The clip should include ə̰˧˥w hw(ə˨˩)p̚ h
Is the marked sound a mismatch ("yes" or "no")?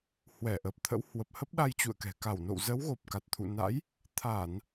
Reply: no